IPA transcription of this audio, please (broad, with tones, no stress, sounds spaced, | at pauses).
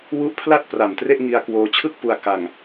w u˦˥ ʔ pʰ l a˥˩ t̚ p r a˨˩ m t r e˥˩ ʔ ŋ i˧ a̯ k w oː˧ t͡ɕʰ ɯ˥˩ k̚ p u˧ a̯ k a˧ ŋ